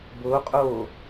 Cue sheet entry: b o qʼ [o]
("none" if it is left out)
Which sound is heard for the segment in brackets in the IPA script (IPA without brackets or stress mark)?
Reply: o